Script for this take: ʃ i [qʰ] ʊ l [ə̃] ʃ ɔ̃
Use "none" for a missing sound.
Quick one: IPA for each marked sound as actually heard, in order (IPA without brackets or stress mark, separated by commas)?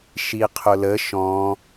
qʰ, ə